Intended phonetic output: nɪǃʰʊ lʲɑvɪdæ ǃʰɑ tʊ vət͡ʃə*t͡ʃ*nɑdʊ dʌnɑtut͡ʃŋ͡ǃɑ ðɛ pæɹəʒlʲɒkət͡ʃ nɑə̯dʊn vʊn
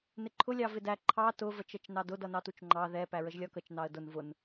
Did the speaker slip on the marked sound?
no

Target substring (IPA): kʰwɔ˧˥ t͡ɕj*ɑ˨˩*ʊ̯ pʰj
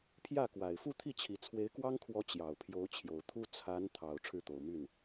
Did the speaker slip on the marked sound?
no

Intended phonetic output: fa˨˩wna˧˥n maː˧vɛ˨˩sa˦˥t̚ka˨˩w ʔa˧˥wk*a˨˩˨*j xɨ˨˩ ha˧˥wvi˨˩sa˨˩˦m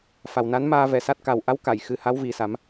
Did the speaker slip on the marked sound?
no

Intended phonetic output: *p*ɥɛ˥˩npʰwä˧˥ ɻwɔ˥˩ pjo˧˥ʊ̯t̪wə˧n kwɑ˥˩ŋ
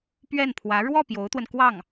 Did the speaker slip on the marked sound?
no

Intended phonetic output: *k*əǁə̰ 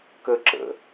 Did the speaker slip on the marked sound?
no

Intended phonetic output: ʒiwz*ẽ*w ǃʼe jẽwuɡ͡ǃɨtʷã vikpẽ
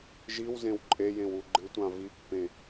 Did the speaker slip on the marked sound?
no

